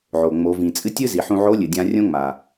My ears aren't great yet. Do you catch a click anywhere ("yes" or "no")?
no